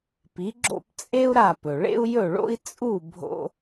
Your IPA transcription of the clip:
p i˩˥ ɡ͡ǁ o̰˥˩ p t͡sʼ e˥ u̯ ɾ a˥˩ p ɵ˩ ɭ ḛ˥ u̯ j ɵ˥˩ ɭ o̰˥ i̯ t͡sʼ u˥˩ bʱ o̰˥

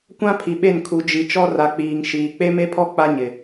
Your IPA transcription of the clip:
kʷ ã˦ pʰ i˨ ɓ e˦˨ n kʰ u˨ d͡ʒ i˨ t͡ʃ ɔ˦ r a˨ k͡p iː˨ ŋ ʃ iː˨ k͡p e˦ m e˦ pʰ ɔ˦ k͡p a˦ ɲ ɪ˨

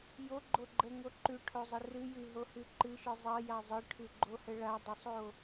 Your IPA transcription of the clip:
j o ɡ͡ǃ o ɡ͡ǃ ə ŋ o ǃ ʉ ʈʰ o zˤ ə r ɨ j ɨ ɦ o h ʉ ǃ ɨ ʃ ɨ zˤ ɐ j a zˤ ɨ ʈʰ ʉ ɡ͡ǃ o h ə ɭ a dˤ ə sˤ o

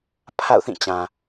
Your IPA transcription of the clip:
pʰ a̰˦˨ ʊ̯ θ ĩ˦˨ t͡ɕ ã˨

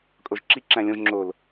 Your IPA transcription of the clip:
kʼ o ʒ ǁ i ǁ æ̃ lʲ õ ʒ ŋ͡ǁ o l

